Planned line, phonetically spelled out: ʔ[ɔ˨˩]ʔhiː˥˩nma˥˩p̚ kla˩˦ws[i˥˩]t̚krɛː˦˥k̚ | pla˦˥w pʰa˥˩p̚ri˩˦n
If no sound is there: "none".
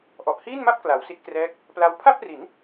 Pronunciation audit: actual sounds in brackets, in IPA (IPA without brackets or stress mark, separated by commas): ɔ˨˩, i˦˥